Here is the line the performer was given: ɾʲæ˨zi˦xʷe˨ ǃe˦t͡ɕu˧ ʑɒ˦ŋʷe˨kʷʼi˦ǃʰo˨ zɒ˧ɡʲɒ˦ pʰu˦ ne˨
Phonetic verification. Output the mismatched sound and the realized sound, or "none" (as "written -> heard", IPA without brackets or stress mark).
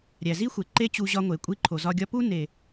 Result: pʰ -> p